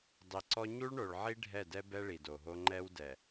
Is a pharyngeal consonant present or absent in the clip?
present